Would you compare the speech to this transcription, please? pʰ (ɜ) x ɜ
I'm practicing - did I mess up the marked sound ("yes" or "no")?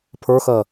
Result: yes